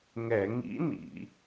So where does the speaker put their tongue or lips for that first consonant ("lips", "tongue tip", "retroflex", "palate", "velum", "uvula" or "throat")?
velum